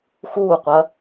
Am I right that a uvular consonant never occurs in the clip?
no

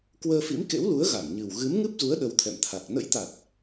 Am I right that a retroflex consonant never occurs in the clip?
yes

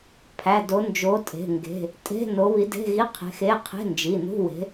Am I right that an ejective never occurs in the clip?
no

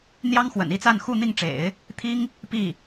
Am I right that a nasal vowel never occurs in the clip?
yes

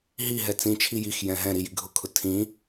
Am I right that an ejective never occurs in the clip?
yes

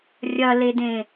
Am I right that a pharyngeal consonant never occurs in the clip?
yes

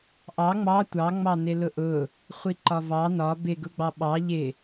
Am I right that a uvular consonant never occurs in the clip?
no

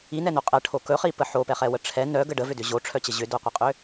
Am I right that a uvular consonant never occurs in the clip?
no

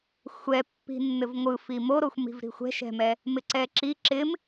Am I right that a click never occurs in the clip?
no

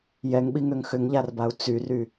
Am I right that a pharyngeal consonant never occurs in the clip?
yes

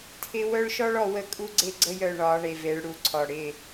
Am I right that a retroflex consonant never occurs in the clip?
no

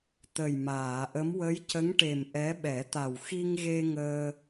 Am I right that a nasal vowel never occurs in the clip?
yes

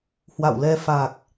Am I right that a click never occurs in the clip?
yes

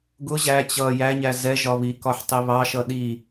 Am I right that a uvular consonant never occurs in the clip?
yes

